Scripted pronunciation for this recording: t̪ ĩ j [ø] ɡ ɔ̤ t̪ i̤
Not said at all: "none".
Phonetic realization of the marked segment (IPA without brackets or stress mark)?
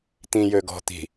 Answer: ø